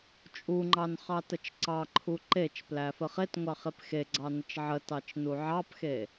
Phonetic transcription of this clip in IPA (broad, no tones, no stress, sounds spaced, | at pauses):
t͡ʃʼ u ŋ͡ǃ ɑ n χ ɑ t ə t͡ʃ ǀ ɑ ǃʰ u ǃ e t͡ʃ p l æ f ə χ e t ŋʷ ɑ χ e p x e ɡ͡ǀ ɑ n ə t͡ʃ ʕ ə t ɑ t͡ʃ n u ʕ ɑ p x e